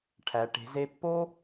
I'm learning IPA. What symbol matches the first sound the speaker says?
ʈʰ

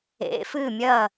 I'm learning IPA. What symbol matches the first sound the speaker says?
ḛ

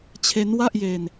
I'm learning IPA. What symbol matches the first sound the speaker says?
t͡ɕʰ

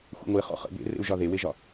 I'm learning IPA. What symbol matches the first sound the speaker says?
xʷ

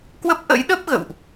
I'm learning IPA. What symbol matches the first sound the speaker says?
k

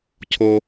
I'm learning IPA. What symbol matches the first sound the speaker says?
cʰ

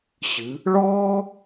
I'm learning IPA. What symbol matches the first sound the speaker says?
ɕ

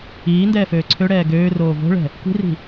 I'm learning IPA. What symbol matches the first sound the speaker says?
iː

